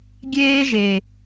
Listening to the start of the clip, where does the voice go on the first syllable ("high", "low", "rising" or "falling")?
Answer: high